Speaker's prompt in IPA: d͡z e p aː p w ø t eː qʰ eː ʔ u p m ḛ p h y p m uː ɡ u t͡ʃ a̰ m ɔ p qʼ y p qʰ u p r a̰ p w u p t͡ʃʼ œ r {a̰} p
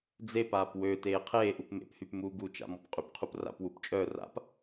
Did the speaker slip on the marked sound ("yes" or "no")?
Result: no